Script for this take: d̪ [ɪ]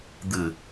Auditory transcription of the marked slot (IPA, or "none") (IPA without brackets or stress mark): ɨ